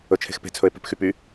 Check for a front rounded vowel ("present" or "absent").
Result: present